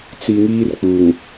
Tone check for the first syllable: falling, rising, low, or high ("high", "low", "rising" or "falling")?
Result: low